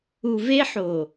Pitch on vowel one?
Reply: low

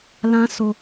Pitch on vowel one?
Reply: high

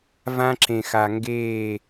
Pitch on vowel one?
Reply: high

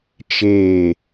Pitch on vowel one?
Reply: falling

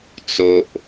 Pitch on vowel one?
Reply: high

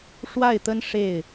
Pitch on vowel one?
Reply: falling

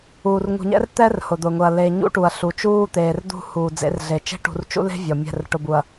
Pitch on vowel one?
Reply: low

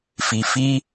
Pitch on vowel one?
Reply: low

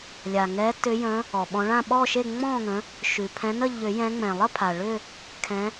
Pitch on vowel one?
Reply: low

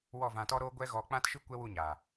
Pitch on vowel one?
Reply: falling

